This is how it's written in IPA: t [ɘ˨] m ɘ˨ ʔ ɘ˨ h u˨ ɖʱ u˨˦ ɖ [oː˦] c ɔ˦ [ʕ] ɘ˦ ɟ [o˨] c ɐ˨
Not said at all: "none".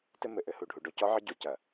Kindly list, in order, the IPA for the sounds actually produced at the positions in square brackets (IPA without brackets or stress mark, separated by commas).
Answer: ɘ˦, o˦, ʕ, o˨